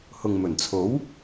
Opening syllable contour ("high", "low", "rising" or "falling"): low